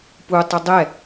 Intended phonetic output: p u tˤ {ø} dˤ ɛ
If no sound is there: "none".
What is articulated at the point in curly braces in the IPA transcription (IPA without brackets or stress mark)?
ə